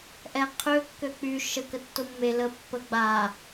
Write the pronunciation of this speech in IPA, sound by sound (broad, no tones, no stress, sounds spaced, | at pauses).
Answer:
ʔ ɛ qʰ ø kː ø k͡p y ʃ ə k ə tː o mː e l ə pː ə ɡ͡b a